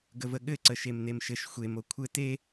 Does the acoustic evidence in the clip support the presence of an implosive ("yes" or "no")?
yes